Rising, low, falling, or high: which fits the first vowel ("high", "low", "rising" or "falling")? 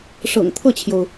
low